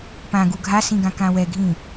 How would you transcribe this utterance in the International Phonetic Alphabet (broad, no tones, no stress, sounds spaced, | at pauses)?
p ã ɡ u ɡʱ a s ĩ ɡ ã k ã w ɛ ɡʱ ĩ